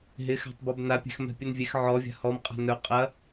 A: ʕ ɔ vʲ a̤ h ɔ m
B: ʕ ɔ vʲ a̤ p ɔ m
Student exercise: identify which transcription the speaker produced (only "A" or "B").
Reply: A